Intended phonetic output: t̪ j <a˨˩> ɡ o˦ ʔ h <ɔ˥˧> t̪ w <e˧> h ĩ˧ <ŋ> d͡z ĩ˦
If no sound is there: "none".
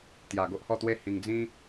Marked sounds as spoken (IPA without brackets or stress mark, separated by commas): a˨˩, ɔ˥˧, e˥˧, ŋ